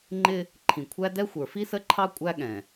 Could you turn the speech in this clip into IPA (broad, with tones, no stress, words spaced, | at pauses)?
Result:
ŋ͡ǃɪ˦ | ǃʰĩ˨kʷʰæ˦dɛ˦ xʷə˞˨fi˦sə˦ǃʰɑ˦ kʷʼæ˦ɠɛ̃˨